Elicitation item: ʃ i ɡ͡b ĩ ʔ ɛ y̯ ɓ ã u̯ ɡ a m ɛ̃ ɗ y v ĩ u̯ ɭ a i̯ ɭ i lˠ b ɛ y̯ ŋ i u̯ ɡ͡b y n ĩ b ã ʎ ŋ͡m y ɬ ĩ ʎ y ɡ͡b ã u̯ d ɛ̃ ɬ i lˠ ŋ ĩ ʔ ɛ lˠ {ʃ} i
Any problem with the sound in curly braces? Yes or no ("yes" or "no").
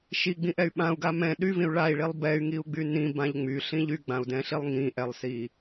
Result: yes